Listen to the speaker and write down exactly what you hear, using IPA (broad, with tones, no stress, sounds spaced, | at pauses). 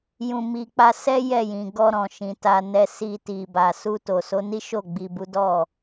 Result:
j ũ˨ m i˨ k͡p a˧ s ɛ˦ j ɛ˦˨ j ĩ˨ ɡ ɔ˧ ɾ ɔ̃˨ ʃ ĩ˨ t a˨ n ɛ˨ s i˧ t i˨ b a˨ s u˧ t o˨ s o˨˦ n i˦ ʃ o˦˨ ɡ͡b i˨ b u˨˦ d ɔ˦˨